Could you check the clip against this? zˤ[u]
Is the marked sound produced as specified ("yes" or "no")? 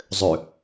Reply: no